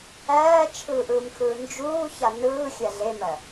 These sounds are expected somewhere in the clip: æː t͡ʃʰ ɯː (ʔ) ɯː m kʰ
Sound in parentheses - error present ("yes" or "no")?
no